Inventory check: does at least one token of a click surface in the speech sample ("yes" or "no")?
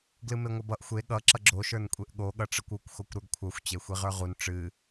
yes